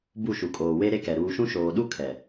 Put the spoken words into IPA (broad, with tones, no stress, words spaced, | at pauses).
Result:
bu˦˨ʃu˨kʼoː˨ we˦ɾe˦kɛ˨ ɾuː˨ʃũ˦ ʃoː˨ɗu˦ kʰɛ˨